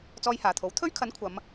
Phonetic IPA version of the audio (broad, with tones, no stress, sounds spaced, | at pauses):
t͡s ɔː˧ j h aː˨˩ t̪ʰ o˨˥ w t̪ʰ ɵ˥ ɥ kʰ ɐ˨˥ n kʷʰ ɐ˨˧ m